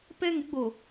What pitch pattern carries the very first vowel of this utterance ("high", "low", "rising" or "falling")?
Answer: high